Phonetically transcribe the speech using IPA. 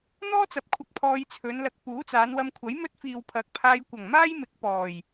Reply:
n̪ ɔː˥ t͡s ɐ˨ p̚ kʷʰ ɐ˧ k̚ pʰ ɔː˧ j t͡sʰ ɵ˨˧ n l ɐ˨ k̚ p uː˨˥ t͡s aː˨˧ n w ɐ˧ m kʷʰ ɐ˨˥ j m ɵ˥ t̚ f iː˨ w pʰ ɐ˨˥ k̚ pʰ aː˧ j kʷ ɐ˨˩ ŋ m aː˥ j m ɪ˨˥ k̚ p ɔː˨˩ j

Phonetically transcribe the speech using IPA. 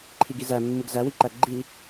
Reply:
ǃʰ i ɡ i z æ mː ɯ ɡ z æ w i ǃ æ ɡ͡ǃ i

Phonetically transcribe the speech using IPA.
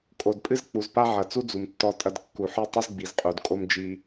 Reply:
kʼ o˨ d pʼ ɨ˦ z k͡p u˨ z p a˦ ʕ ɐ˨ t͡s u˦ d͡z u˨ m tː ɔ˦ tʼ ɐ˦ d kː u˨ ħ ɨ˦ tˤ ɘ˦ z ɡ͡b i˨ z qʼ u˨ d kʼ o˦ m d͡ʒ i˦

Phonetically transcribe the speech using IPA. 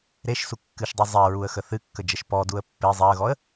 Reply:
ɾ e ʃ s u kː ɨ ʃ dˤ u zˤ ɛ ɹ u ə̯ x ə θ ɨ kː ə d͡ʒ ə ʃ p ɔ d u ə̯ pː e zˤ ɛ ə̯ ɣ ɔ ə̯

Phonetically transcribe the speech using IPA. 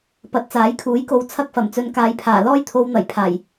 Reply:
p ɐ˨ t̚ t͡s aː˨˥ j kʰ uː˨˥ j k o˨˧ w t͡sʰ ɐ˥ k̚ f ɐ˨˩ m t͡s ɵ˧ n k aː˧ j pʰ aː˨˩ l ɔː˥ j t̪ʰ o˧ w n̪ ɐ˨˩ j pʰ aː˨˩ j

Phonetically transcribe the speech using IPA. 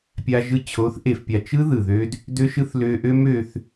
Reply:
pʲ a˧ ʒ ɯ˧ t͡ɕʰ o˨˦ θ ʔ e˨ f pʲ a˨ t͡ʃ ɯ˦ ð ɯ˨ ð ø˦ d | d ø˧ ʃ ɯ˧ θ l ø˧ ʔ ø˦ m ø˧ θ

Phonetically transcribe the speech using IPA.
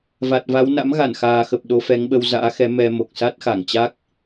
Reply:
v a˨˩ t̚ v a˨˦ w n a̰˧˥ m ɣ a˧˩ n x aː˨˩ x ə˨˩ p̚ ɗ o˨˦ f ɛ˨˦ ŋ ɓ ə˧ w z a̰ː˧˥ x ɛ˨˦ m ɛ˧ m o˨˩ k̚ s a˦˥ t̚ x a˧˩ ŋ t͡ɕ a˦˥ k̚

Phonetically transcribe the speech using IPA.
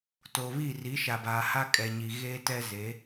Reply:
t o˨ β i˦˨ r i˨˦ ʃ a˨ b aː˨ h a˦ kʼ ɛ˨ ɲ i˨ ɣ eː˦ t ɛ˦ z e˨˦

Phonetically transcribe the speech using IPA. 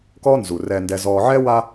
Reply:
k ɔ˦ n z u˨ r ɛ˨ n d ɛ˨ z ɔ˨ ʕ ɛ˦ w a˦

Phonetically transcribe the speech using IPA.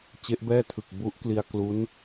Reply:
t͡ɕ e˦˥ ʔ b ɛː˥˩ tʰ ɯ˨˩ k̚ b u˦˥ ʔ k l i˧ a̯ k l u˦˥ n

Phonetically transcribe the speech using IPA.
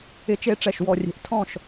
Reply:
ɪ˨˦ t͡ʃ e˨˦ ʈ͡ʂ ɛ˨˩ ʃ w ɔ˨˩ rʲ e̤˨˩ ʔ tʰ ɔ̃˥˩ ʃ

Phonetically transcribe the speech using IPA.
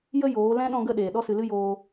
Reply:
j ə˦ j oː˨˦ l ɛ̃˦ ɗ ɔ̃˧ ɡ ə˧ ɗ eː˨ ɗ ɔ˦ s ɨ˧ l ɨ˦ j oː˧

